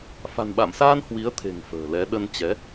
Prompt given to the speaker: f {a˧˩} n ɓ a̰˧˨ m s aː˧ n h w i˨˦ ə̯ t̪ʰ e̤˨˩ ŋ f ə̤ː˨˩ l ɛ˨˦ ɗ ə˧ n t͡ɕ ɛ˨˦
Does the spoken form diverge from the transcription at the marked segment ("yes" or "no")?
yes